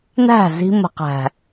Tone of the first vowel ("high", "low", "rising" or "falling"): falling